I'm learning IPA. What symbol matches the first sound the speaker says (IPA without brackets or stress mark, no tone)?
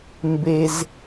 m